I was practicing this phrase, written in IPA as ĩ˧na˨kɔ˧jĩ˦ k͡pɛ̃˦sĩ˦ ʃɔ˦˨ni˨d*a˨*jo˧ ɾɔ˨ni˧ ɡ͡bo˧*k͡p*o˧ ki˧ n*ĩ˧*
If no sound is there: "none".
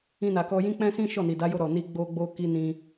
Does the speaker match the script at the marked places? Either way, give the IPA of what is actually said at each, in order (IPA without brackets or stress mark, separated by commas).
a˨˦, ɡ͡b, ĩ˧